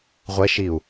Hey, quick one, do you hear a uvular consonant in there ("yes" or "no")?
yes